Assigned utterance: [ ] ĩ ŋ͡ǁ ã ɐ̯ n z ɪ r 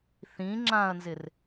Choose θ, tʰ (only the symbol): θ